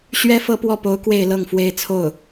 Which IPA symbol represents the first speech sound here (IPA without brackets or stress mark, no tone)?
ɕ